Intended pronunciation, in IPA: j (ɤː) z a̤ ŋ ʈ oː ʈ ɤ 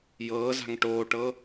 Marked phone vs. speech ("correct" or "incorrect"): correct